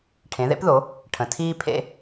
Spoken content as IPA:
ʈʰ ẽ˩˧ ð ḛ˦ p ð o˩˧ | ʈʰ ə̃˩ tʰ iː˦ pʰ ḛ˦

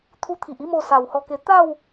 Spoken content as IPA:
t̪ʰ u˧ t̪ʰ i˨ ʔ i˥˧ m o˧ s a˨˩ w h ɔ˧ k e˧ t̪ a˥˧ w

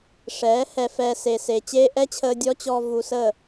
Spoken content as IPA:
ʂ ɛː˨˦ h ɛ˧ f ɛː˧ s e˨ s e˨ t͡ɕ eː˧ ʔ ɛ˦ t͡ɕʰ əː˧ dʲ ɔ˦ t͡ɕ ɔː˧ v u˧ s əː˦˨

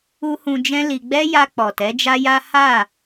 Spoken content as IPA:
u˦ h ũ˧ d͡ʒ ɛ̃˦ l i˧ ɡ͡b ɛ˦ j a˧ k͡p ɔ˨ t ɛ˨˦ d͡ʒ a˦ j a˦ h a˦˨

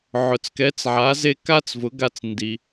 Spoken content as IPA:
ʕ ʊ˩ t͡s k ɛ˩˥ t͡s ʕ a˩˥ z e˧ k a˥ t͡s v ʊ˩˥ ɡ a˧ t͡s n d i˩

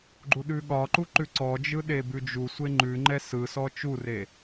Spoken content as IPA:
ɡ͡ǃ u ɗ ʉ ɠ ɒ ǃ u ǃ ʉ ǀ ɔ d͡ʒ ɯ ɗ e b ʉ d͡ʒ u sʷ e ŋ͡ǃ ʉ ŋ͡ǃ ɛ s ɯ s ɔ t͡ʃ u r e

